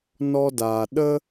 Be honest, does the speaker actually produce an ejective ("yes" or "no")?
no